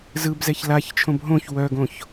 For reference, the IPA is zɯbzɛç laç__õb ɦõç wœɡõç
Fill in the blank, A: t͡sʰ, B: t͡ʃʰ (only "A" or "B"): B